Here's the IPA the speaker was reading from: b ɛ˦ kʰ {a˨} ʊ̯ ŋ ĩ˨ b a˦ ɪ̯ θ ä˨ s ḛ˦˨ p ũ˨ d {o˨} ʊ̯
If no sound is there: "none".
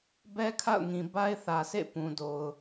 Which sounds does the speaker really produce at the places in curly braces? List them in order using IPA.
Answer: a̰˦˨, o˨

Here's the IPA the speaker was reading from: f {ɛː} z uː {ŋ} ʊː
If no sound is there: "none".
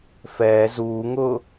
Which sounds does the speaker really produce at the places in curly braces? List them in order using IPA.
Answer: ɛː, ŋ

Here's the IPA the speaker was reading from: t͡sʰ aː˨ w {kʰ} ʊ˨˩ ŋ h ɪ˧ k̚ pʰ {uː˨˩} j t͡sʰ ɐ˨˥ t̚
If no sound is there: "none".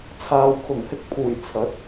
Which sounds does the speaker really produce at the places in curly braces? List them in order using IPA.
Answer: kʰ, uː˨˩

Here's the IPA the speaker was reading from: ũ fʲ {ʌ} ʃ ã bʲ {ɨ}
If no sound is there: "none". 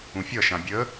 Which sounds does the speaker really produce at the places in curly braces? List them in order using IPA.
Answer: ʌ, ə

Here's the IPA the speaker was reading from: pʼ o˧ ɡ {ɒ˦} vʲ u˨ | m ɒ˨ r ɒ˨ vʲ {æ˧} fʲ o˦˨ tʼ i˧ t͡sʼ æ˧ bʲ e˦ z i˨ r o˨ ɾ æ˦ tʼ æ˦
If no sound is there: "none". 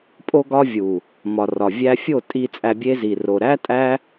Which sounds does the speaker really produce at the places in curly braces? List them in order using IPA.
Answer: ɒ˧, æ˧

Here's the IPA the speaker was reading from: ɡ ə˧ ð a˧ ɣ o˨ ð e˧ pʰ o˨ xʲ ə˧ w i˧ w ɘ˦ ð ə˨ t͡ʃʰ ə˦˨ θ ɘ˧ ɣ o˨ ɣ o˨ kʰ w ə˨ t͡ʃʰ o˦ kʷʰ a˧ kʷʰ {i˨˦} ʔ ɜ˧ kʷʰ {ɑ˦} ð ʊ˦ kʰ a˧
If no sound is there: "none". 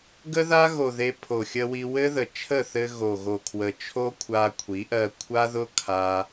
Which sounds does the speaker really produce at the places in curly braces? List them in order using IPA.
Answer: i˨˦, a˦

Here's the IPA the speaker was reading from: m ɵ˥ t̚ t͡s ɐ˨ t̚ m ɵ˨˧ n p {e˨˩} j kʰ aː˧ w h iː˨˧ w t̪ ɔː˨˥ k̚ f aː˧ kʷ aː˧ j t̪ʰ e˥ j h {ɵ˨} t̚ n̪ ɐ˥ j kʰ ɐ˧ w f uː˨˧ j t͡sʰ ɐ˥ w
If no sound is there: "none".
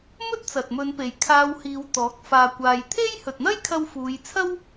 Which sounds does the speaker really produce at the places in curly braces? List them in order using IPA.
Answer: e˨, ɵ˨

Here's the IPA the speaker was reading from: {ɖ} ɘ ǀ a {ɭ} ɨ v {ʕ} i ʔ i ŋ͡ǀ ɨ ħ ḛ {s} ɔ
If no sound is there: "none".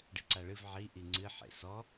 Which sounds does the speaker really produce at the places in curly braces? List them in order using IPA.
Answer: ɖ, ɭ, ʕ, s

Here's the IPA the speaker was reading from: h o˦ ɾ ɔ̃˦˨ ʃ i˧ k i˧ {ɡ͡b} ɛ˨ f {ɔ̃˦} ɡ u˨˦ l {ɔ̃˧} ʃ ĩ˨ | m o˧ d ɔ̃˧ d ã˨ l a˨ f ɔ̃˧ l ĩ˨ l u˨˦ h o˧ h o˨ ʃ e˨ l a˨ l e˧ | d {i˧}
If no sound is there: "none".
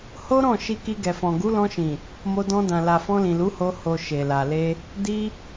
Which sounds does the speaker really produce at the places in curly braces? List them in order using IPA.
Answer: ɡ, ɔ̃˨, ɔ̃˧, i˧

